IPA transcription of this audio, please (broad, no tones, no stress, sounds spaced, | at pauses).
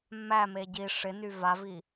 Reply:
mː æ m e ɟ i ʂ ɪ n y v a v i